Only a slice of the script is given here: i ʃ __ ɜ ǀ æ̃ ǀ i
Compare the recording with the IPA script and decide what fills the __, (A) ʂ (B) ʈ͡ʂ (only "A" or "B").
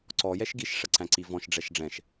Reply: A